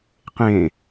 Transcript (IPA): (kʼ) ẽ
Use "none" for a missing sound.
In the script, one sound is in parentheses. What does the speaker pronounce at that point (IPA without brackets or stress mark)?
q